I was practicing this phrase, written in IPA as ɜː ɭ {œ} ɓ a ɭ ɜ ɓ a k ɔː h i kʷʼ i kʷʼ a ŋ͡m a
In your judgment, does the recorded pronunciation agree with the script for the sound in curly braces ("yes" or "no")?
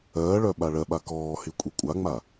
yes